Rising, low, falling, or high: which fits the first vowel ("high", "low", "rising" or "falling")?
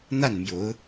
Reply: falling